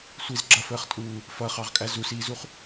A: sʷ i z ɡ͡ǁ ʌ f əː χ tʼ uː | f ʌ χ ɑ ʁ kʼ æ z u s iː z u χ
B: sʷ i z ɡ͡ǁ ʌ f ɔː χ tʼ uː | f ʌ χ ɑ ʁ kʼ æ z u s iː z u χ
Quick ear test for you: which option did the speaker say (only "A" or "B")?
A